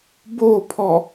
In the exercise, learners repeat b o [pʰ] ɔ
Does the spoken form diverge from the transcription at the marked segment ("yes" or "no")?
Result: no